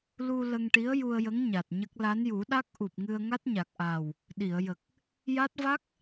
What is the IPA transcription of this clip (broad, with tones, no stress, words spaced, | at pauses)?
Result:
lu˧ lə˧ŋʈi˧˥ə̯ju˧ə̯jə˧˥ŋ ɲa˨˩t̚ɲə˦˥k̚ la˧˥nju˨˩˦ ɗa˦˥k̚ ʔu˨˩p̚ŋɨ˧ə̯ ŋa˦˥t̚ɲa˨˩k̚ʔaː˨˩w | ɗi˨˩˨ə̯jə˨˩k̚ | ja˦˥t̚ va˦˥k̚